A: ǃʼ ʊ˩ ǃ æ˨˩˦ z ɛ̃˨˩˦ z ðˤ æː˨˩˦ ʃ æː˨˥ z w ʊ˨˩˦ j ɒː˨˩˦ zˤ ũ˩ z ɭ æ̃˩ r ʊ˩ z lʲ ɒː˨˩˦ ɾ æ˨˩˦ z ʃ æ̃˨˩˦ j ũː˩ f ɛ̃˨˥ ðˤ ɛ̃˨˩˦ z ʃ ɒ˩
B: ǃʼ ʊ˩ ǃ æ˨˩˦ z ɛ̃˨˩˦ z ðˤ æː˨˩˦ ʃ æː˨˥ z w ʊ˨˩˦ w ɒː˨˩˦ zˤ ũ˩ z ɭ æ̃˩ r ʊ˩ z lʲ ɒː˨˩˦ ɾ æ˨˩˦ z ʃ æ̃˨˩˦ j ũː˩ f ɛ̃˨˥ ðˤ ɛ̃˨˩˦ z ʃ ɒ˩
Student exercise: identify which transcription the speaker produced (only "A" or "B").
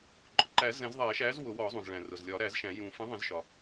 B